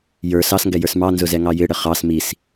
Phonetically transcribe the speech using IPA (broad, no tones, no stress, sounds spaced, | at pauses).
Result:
j ə˞ s ɑ s ŋ ɡ ɛ j ə˞ s m ɑ n z ʊ z ɛ ŋ ɑ j ɪ ɽ ə χ ɑ s m i s